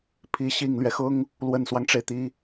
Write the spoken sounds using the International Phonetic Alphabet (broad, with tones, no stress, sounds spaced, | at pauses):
pʰ i˧˥ ɕ i˨˩ ŋ l ɥ ɛ˦ x ʊ˥ ŋ | l w ə˨˩ n s w ɑ˦ ŋ ʈ͡ʂ e˩ ɪ̯ t̪ i˧˥